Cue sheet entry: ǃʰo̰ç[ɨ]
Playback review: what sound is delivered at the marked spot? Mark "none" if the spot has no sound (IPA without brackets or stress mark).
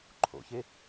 e